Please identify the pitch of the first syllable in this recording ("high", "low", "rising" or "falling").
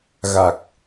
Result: low